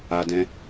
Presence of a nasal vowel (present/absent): present